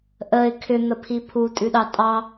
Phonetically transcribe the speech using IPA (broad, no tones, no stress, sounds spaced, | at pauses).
ʔ ə ɪ̯ kʰ ʏ n̪ ə pʰ i pʰ u tʼ ʉ ɗ ɑ tʼ ɑ